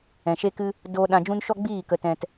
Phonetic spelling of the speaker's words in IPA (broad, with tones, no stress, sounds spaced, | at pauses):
ɛ̃˨ ʃ e˦ k ɨ˦ | d oː˦ ɗ ã˧ d͡ʒ ũ˦ n ʃ ɔ˦ ɡ͡b iː˦˨ k ə˧ t ɛ̃˧ t